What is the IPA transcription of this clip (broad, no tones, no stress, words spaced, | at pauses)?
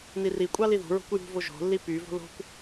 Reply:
nirikʷʼɑ liðṳɹo̤kʷ jṳvo ʒo̤lːi pyvo̤ lo̤kʷ